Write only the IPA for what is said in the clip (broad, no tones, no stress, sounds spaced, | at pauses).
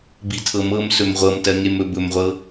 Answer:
b i tʰ ɤ m ɤ m s ɵ m ʁʷ ɤ m t ɜ ŋ e m ɵ b ɵ m ʁʷ ɤ